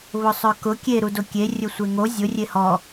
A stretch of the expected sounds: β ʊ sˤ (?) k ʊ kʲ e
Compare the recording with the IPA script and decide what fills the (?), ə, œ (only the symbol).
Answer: œ